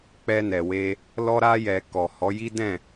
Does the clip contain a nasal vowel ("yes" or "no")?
yes